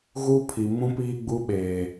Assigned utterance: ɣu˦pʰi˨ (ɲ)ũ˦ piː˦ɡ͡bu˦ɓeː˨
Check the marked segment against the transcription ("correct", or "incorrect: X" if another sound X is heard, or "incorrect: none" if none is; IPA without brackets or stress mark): incorrect: m